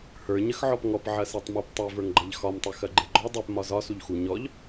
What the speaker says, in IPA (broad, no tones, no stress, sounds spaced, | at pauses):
h ə˞ ɲ ə x ʕ ɔ p ŋ ɔ p ʕ ɐ s e tˤ m ɐ p tˤ e v ə˞ ŋ ɡ͡ǃ ɐ ʎ x ɒ m tˤ u x ɐ ɡ͡ǃ e ɡ͡ǃ ɔ dˤ ø p m ɒ z ɒ s u ʎ x u ɲ ɔ ʎ